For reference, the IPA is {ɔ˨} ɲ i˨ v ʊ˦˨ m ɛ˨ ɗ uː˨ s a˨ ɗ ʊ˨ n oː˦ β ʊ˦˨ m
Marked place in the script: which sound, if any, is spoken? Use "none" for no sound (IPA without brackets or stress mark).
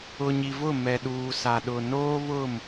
ʊ˨